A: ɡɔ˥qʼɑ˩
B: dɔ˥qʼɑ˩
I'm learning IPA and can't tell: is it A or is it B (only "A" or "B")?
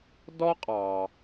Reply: B